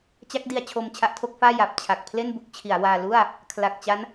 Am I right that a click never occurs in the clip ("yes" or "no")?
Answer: yes